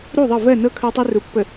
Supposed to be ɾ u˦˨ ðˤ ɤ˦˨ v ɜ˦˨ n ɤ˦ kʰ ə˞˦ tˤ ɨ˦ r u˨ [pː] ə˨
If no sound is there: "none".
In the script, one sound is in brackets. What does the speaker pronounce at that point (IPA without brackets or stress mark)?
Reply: pː